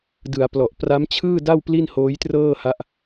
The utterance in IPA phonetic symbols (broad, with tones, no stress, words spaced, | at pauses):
dɯ˩˦a̯plɔ˨˩ʔ pra˦˥mt͡ɕʰɯː˥˩da˥˩w pli˥˩nhoː˦˥jtrɤː˥˩ha˦˥ʔ